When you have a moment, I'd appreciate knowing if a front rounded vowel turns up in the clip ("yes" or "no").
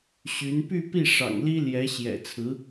yes